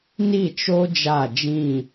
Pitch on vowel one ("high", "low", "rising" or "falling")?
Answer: falling